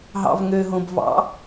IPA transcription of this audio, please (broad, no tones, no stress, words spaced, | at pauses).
ɦɑ̰vŋøɦõb vɑ̰